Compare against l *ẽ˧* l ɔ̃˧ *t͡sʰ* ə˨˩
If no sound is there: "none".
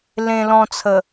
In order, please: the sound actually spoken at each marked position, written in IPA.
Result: ẽ˧, t͡sʰ

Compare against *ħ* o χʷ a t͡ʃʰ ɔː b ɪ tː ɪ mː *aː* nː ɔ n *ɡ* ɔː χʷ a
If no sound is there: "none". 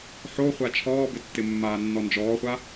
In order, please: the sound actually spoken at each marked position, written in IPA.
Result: ħ, aː, d͡ʒ

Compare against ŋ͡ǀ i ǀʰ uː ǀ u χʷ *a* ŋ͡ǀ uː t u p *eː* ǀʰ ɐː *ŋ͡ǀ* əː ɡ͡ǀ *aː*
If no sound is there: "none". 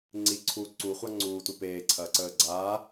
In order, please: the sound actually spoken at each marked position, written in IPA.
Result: a, eː, ǀ, aː

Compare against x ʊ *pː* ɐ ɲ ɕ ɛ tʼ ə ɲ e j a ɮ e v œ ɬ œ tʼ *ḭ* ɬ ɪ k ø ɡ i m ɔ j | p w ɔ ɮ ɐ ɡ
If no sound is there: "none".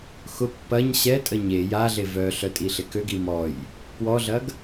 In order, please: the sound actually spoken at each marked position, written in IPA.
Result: pː, i

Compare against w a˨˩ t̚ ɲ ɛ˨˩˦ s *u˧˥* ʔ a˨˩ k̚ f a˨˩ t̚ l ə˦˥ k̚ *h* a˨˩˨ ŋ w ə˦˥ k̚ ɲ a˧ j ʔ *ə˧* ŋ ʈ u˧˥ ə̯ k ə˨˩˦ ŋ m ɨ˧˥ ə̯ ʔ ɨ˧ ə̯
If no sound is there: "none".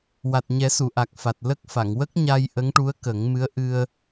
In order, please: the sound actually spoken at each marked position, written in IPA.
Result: u˨˩˨, f, ə˧˥

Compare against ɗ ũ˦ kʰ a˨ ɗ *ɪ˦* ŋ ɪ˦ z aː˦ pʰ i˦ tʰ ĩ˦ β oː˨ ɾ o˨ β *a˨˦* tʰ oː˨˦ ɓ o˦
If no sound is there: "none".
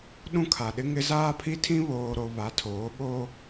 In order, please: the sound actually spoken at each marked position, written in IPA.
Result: ɪ˦, a˨˦

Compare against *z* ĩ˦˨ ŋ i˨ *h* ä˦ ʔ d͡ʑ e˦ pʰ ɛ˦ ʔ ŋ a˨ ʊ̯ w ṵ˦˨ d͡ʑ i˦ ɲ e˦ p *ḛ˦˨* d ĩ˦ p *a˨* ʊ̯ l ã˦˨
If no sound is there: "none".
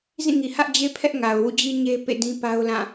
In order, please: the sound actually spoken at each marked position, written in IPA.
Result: z, h, ḛ˦˨, a˦

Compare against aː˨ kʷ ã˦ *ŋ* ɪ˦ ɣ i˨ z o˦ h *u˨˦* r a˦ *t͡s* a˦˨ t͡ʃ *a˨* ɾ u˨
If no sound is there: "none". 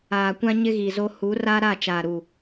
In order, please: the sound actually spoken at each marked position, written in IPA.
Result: ɲ, u˨˦, ɾ, aː˨

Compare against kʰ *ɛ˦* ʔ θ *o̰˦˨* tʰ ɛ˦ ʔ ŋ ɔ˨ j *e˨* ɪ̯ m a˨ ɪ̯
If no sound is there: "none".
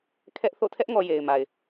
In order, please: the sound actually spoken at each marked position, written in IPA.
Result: ɛ˦, o̰˦˨, e˨

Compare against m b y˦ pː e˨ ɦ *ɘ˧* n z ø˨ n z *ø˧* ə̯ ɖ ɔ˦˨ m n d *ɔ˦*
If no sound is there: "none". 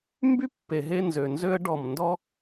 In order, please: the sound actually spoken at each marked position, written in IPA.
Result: e˧, ø˦, ɔ˦

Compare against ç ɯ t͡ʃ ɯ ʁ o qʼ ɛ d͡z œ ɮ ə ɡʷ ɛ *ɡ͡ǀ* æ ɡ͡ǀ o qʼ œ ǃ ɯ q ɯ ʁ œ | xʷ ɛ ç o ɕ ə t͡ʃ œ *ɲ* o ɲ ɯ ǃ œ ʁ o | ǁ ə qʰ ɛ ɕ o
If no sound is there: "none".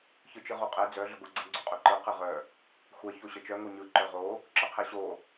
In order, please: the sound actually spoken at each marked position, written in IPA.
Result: ɡ͡ǀ, ŋ

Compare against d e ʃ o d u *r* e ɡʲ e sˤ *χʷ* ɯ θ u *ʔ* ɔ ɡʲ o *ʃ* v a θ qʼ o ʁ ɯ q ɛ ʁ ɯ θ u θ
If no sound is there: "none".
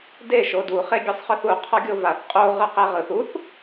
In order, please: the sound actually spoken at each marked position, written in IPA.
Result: χ, χ, qʰ, none

